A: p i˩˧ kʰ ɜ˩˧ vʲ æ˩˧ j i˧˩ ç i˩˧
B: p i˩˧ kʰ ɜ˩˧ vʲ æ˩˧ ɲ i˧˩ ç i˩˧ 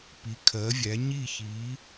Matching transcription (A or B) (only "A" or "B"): B